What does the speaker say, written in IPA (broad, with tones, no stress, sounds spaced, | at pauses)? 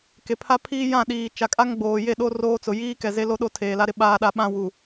k e˨ pʰ a˦ pʰ iː˦ j ã˦˨ ɗ iː˨ t͡ʃ a˨ kʼ a˦ ŋ ɡ͡b oː˨ j e˦˨ ɗ o˦ r oː˦ t͡s ʊ˨ j iː˦ k ɛ˨ z e˦ l o˦ ɗ o˦ tʰ eː˨ l a˦ ɾ ɪ˦ ɓ aː˦ ɗ a˦ ɓ ã˦ w u˨